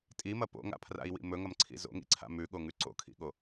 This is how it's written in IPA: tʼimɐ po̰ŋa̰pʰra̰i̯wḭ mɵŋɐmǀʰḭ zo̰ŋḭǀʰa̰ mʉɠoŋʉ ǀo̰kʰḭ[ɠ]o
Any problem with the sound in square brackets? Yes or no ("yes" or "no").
no